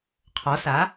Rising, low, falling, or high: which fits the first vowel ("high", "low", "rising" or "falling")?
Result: rising